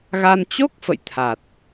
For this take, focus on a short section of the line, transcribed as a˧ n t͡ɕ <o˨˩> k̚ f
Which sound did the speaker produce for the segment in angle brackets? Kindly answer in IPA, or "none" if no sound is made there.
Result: o˦˥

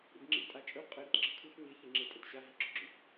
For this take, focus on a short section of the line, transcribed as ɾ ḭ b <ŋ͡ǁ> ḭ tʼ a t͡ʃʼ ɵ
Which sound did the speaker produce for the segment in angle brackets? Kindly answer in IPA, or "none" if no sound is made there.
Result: ŋ͡ǁ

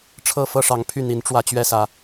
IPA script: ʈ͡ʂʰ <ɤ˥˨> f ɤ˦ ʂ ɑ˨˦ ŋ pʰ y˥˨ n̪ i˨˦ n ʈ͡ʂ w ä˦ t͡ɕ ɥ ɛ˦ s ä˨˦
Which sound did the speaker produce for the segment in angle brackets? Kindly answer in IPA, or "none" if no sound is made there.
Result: ɤ˥˨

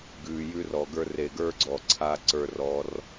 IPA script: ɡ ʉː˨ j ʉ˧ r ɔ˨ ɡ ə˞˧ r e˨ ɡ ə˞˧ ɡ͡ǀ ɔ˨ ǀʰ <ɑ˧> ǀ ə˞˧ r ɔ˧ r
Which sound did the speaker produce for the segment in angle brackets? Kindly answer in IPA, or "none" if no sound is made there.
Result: a˧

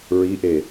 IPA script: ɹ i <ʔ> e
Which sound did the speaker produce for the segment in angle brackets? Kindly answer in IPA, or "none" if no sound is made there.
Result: ʔ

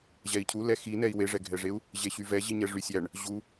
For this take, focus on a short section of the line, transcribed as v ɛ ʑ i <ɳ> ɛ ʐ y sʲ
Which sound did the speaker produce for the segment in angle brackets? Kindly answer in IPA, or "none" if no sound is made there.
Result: ɲ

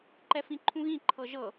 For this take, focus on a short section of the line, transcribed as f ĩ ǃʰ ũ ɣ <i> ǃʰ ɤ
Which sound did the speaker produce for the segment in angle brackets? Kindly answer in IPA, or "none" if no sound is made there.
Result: ĩ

